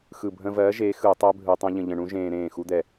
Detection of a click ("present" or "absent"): absent